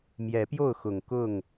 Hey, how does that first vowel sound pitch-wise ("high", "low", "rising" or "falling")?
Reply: rising